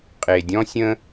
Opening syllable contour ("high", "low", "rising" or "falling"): low